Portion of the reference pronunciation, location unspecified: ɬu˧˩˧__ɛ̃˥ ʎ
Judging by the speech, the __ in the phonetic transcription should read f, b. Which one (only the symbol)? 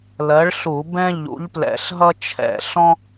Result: b